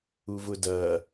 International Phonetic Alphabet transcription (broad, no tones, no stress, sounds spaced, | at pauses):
u v ʊ d ɐ